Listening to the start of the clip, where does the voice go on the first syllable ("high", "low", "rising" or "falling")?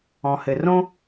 low